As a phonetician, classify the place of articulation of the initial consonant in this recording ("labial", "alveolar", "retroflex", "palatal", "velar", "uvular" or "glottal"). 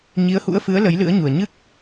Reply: palatal